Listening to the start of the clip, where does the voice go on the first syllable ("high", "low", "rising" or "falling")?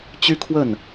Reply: high